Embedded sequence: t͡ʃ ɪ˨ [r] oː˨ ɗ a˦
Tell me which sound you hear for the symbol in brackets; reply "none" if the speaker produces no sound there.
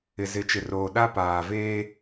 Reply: r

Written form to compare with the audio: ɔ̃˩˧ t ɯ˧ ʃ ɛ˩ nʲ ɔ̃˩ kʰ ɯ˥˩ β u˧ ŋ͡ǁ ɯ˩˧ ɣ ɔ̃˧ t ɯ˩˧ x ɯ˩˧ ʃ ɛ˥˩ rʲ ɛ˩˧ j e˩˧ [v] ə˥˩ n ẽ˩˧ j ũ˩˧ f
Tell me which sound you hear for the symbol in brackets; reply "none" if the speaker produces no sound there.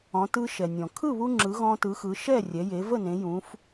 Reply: v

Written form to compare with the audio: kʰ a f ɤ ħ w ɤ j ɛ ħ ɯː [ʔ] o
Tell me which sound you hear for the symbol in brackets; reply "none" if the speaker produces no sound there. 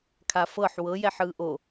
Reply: ʔ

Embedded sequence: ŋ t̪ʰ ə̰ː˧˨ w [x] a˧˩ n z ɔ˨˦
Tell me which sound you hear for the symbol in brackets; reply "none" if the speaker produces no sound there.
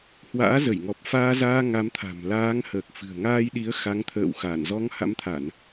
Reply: x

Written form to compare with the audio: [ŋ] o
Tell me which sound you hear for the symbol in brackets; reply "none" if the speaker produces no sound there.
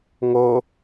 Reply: ŋ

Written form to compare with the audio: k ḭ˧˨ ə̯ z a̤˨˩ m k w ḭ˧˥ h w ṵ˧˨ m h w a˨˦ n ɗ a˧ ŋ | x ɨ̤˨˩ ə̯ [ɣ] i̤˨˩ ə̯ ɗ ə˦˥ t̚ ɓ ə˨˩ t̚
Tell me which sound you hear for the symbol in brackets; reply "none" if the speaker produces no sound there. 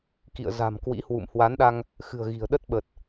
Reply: ɣ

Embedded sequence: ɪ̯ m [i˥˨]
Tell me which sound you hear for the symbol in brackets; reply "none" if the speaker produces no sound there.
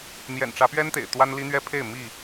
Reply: i˥˨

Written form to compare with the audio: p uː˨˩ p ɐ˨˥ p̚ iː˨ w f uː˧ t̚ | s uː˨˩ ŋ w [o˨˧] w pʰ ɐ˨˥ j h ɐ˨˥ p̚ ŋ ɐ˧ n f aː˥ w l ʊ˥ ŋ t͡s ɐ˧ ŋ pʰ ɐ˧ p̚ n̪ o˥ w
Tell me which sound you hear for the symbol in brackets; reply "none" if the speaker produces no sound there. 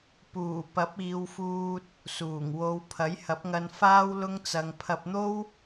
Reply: o˨˧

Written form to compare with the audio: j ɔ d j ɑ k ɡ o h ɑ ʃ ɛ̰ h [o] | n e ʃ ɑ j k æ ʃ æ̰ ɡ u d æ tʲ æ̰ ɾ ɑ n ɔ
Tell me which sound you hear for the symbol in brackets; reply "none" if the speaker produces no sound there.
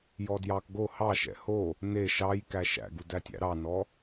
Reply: o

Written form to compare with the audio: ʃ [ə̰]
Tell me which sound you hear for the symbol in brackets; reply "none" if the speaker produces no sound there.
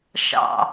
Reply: ɑ̰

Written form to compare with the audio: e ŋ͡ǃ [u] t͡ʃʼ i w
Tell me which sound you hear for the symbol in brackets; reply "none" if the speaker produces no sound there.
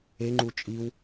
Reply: u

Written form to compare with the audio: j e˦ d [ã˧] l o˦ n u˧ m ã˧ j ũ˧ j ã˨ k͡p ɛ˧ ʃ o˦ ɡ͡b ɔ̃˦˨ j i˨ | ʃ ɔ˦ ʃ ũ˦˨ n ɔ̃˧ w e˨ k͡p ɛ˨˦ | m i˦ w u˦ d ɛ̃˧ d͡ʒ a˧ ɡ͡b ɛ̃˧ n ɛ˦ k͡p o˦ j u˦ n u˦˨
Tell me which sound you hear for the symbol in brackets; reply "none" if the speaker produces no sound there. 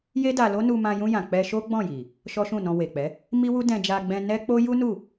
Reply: a˧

